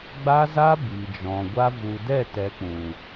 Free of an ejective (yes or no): yes